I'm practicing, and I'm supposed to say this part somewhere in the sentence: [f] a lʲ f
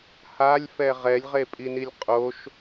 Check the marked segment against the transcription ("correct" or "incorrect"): incorrect